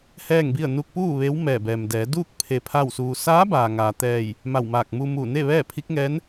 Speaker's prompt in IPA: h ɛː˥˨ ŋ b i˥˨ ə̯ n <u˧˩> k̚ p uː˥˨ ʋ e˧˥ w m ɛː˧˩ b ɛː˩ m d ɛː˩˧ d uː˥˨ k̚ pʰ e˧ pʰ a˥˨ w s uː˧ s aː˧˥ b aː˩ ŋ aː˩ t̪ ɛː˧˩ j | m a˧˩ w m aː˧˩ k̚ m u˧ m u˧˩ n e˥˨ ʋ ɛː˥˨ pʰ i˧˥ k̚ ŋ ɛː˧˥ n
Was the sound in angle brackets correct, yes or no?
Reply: no